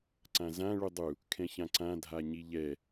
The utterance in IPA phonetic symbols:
ǀ ã z ã ɭ u dˤ u | kʰ ɛ̃ ç ã ǀ ã dʱ a ɲ i ʎ ɛ

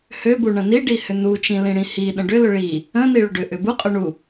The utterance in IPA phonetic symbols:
h ø b u ɳ ə̃ n i ɖ i h ʏ n u t͡ʃ ĩ l ĩ ɽ ĩ h i ɗ ə̃ ɖ ʏ l ʏ ɭ i | ə̃ n i ɭ ʏ ɖ ʏ ʔ ʏ b u qʼ ø ɳ u

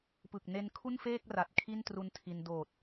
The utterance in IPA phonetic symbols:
p ɯ˨˩ k̚ n e˧ n kʰ u˥˩ n f eː˥˩ k̚ r a˨˩ t̚ kʰ i˥˩ n t r u˧ n tʰ i˧ n d oː˨˩ t̚

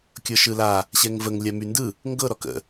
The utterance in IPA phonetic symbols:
kʲ ɤ ʃ ɯ l a | ɕ ɛ ŋ v ə ŋ lʲ a m y n d ɯ | ŋ ɡ ɤ ɾ ɔ k ə̰

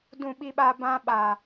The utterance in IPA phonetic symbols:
d ũ˦˨ ɓ i˦ ɓ a˦ b ã˦ ɓ a˨

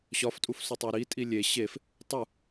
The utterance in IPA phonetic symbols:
ɕ ɒ f tʼ u f s o tˤ æ ɾ i tʼ i lʲ e ɕ e f | tˤ u

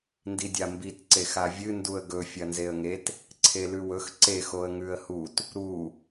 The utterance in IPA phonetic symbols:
n d i dʲ a m b i t ǀ e x a vʲ ɨ n d u ə̯ ɡ ɵ fʲ ɐ n z e ə̯ ŋ e t | ǀʰ e l ʉ w ɵ x ǀ e x o ə̯ ŋ ʉ ə̯ h u t | ɾ u

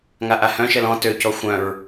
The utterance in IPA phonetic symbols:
ŋ a ʔ a h œ̃ ʃ ɛ l ɔ̃ t ø c ɔ xʷ œ̃ ɹ

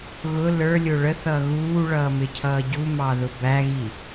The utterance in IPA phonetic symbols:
ɣ ʊ l ə˞ lʲ ʊ ɭ ə θ ʌː ɣ uː ɭ ʌː m ɪ cʰ ʌː ɟ u m ɑ ð ʊ b æ ɣ i

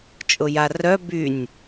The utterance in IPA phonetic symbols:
t͡ʃʼ ʊ j a r œ b y nʲ

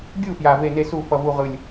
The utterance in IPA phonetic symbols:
ɡʲ u˥˩ f j a˧˩ v e˥˩ n e˥˩ s u˥˩ f ʌ˧˩ v u˧˩ ʁ ɯ˧˩ lʲ

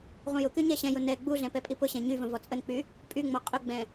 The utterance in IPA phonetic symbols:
ʁʷ ə̃ j ʊ k y ɲ ɛ ɕ ɛ̃ j ʊ n ɛ ɡ͡b u ɮ ɛ̃ p ɛ pʼ i p ʊ ɕ ɛ̃ ɲ y v ə̃ v ɔ t͡sʼ ə n k͡p y | pʼ y ŋ͡m ɔ qʼ ʊ ɡ͡b ɛ̃

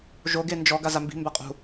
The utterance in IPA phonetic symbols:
ʒ o ɡ e n d͡ʒ ɔ ɡ a z a m b i̤ m b a qʼ ṳ

